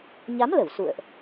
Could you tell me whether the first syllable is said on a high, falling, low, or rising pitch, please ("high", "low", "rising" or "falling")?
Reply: rising